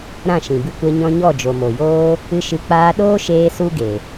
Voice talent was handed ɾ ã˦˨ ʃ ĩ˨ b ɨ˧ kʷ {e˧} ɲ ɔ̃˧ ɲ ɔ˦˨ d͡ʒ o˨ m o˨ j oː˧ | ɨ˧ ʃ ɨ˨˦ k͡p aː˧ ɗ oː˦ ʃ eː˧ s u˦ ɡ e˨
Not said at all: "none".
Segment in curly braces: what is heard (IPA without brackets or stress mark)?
ɛ˧